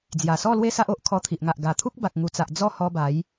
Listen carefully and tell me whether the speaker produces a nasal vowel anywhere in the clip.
no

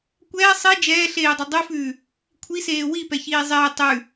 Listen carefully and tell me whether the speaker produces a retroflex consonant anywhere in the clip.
no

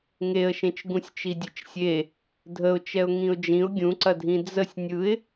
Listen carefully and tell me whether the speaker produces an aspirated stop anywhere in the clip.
no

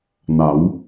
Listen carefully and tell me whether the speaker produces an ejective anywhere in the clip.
no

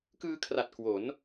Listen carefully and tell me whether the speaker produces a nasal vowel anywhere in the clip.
no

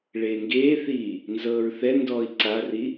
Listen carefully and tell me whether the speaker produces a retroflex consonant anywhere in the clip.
yes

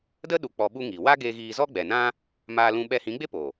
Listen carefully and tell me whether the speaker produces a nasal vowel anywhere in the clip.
yes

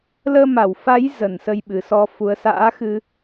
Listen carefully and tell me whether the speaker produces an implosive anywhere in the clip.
yes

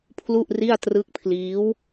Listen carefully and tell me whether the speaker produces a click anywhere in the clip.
no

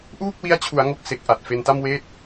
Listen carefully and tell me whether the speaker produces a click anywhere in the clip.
no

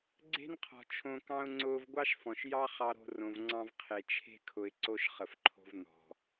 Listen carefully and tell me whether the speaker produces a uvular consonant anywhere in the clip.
yes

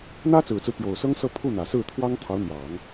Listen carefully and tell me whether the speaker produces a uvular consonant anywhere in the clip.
no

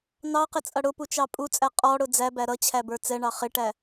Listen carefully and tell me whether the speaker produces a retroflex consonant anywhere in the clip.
yes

